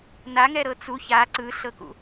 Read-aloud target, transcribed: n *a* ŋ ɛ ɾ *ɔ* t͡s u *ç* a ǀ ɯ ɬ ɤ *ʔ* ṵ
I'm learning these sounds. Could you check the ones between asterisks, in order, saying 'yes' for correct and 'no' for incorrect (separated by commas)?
yes, no, yes, no